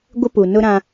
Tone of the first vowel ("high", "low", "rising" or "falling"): high